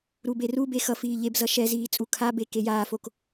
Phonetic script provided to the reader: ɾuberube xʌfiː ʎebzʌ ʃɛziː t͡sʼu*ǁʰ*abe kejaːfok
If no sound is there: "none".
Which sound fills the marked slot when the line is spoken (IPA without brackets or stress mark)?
kʰ